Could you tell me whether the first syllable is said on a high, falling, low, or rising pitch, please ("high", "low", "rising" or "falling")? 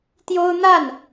high